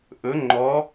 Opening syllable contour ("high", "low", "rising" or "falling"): rising